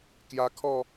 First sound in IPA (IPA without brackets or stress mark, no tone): k